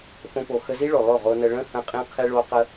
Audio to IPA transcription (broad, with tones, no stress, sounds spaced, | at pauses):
f õ˧ p o˨ x ə˧ z i˦ ɭ o˨ lˠ o˦˨ ʁ o˧ n ə˧ ɭ ə̃˦ h ə̃˧ qʼ ĩ˧ qʰ i˧ ɭ o˧ q ə˧